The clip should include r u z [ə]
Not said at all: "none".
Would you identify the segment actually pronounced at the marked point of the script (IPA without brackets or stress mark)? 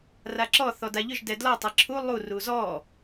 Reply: ɔ